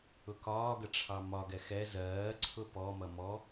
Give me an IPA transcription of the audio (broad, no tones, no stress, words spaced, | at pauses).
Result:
ʊkɒː ɡəʈ͡ʂʰɑmɒ ɡɛxɛ zɜː ǀʰʊpɔ mʌmɔ